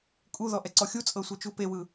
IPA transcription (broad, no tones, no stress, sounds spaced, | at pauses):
kʼ u ð ɔ ʔ ɛ ǀ ɔ xʲ u t͡sʼ ɤ sʷ ɤ t͡ʃ u p e w ɯ